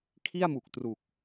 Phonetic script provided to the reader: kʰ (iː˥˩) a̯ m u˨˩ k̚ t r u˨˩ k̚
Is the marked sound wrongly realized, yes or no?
yes